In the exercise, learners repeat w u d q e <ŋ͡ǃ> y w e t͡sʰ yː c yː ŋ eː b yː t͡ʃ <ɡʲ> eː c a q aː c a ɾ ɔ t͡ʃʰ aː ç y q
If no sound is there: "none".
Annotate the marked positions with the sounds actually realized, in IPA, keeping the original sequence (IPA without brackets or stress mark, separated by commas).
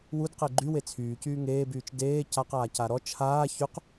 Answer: ɡ͡ǃ, d